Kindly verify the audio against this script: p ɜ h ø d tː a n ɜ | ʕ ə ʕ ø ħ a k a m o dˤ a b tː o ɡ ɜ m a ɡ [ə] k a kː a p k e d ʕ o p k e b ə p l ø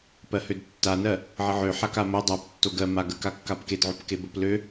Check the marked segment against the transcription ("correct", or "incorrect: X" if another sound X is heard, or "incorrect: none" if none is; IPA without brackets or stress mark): correct